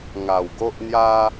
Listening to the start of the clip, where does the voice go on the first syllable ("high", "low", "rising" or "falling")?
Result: low